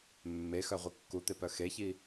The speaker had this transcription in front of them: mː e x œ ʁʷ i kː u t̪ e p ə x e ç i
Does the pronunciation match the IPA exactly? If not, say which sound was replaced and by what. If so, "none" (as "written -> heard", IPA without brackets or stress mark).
ə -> œ